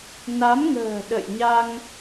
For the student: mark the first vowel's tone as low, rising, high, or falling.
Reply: rising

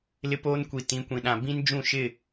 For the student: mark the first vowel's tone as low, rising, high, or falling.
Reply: high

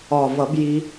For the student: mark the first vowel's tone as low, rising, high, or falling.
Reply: low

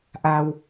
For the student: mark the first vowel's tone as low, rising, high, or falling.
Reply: low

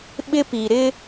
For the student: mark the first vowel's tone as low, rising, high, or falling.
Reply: high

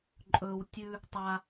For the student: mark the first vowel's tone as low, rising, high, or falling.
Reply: low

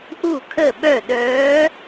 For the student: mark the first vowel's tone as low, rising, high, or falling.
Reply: falling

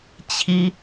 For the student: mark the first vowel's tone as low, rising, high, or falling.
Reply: high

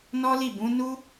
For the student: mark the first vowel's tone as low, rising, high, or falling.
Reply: high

